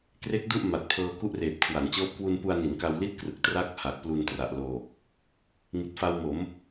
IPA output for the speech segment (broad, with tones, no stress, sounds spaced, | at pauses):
k r e˦˥ k̚ d u˥˩ ʔ m a˨˩ t̚ pʰ ɤː˧ k u˥˩ ʔ r eː˨˩ t̚ kʰ w a˩˦ n t͡ɕ ɤː˦˥ p̚ k w u˧ n p u˧ a̯ n i˩˦ n k a˧ w l i˥˩ t̚ k r ɯ˨˩ k̚ t r a˦˥ k̚ h a˨˩ k̚ p l u˧ n t r a˨˩ ʔ l oː˨˩ k̚ | ŋ i˨˩ t̚ f a˧ w m o˩˦ m